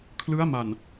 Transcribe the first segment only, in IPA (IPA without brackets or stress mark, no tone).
kʰ